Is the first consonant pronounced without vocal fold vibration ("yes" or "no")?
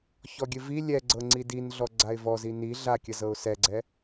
yes